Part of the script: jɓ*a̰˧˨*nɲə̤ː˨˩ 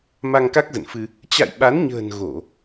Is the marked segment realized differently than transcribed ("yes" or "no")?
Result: yes